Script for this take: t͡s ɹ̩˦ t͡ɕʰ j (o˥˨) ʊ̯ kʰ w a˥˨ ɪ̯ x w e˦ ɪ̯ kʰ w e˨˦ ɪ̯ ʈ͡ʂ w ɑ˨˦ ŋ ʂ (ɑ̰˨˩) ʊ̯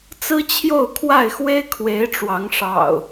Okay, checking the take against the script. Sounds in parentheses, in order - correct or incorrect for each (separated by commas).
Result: correct, correct